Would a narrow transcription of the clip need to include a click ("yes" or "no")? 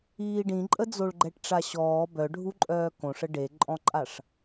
yes